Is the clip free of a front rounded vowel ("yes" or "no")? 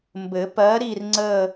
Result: yes